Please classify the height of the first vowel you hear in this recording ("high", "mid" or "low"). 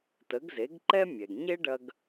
mid